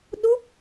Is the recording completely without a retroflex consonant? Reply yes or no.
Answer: yes